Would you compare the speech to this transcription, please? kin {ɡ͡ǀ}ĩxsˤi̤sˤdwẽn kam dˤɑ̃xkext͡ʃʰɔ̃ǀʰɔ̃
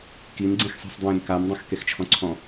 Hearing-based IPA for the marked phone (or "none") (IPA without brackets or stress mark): ɡ͡ǀ